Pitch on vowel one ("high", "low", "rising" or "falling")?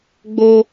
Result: high